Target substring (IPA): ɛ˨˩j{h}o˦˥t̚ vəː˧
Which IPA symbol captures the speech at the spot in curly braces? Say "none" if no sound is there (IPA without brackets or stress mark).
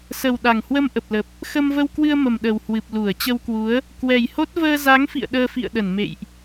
h